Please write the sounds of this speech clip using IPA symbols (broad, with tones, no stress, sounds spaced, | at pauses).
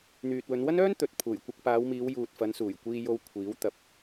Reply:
n̪ yː˨ t̚ w ɵ˨˧ n w ɐ˥ n œː˥ n t̪ ɵ˨ t̚ pʰ uː˨˩ j kʷ ɐ˧ k̚ p aː˨˧ w m iː˨˧ w j uː˨ t̚ f ɐ˨˧ n s uː˨˩ j kʷ iː˧ j o˧ w kʷʰ iː˨˥ w t̪ ɐ˨ p̚